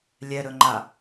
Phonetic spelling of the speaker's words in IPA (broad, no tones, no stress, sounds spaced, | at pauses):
lʲ ɛ ɾ ɵ ŋ͡ǃ a